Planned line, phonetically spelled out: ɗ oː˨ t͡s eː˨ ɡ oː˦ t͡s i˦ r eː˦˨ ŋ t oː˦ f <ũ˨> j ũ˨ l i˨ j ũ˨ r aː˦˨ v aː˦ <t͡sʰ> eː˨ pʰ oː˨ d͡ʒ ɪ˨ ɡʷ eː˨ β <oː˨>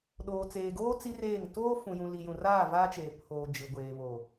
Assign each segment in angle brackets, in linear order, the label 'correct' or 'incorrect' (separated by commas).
correct, incorrect, correct